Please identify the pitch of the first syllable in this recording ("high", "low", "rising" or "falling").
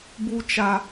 high